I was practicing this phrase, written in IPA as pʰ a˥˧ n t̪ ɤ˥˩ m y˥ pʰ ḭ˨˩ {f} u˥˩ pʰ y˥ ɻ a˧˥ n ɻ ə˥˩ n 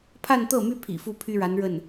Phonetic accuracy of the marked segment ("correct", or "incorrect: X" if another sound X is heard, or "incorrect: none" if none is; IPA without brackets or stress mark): correct